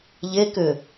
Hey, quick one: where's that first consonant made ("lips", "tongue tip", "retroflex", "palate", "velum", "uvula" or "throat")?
palate